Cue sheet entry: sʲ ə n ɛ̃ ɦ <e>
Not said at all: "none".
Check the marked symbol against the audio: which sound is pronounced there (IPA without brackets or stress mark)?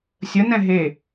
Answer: e